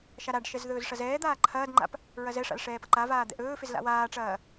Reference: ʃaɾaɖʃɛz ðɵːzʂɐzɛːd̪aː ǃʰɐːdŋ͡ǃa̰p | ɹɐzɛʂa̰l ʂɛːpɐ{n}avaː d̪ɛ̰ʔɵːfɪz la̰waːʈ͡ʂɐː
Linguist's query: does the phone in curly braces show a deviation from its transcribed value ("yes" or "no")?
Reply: yes